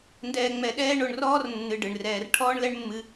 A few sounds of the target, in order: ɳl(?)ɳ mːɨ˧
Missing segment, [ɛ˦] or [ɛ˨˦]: ɛ˦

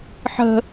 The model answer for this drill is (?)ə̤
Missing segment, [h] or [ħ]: ħ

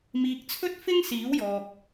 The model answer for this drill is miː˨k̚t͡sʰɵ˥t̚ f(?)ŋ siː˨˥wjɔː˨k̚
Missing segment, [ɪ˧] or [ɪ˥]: ɪ˥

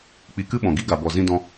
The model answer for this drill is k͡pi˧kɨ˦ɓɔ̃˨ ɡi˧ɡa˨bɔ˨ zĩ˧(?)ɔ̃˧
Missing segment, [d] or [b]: d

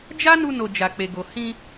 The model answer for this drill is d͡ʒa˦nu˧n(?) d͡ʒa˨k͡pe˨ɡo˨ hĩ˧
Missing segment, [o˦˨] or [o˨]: o˨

